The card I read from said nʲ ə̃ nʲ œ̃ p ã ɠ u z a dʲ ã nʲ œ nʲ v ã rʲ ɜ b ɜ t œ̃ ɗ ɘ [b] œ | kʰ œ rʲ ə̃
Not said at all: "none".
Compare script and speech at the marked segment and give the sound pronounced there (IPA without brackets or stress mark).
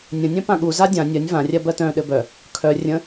b